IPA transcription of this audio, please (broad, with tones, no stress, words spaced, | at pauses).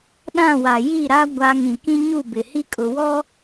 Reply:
ɗã˦˨wa˨ ji˦˨ɾa˦ ɡʷa˦ ŋĩ˨kĩ˦ ɲu˦˨bɪ˨hi˦kʼʊ˨ wɔ˦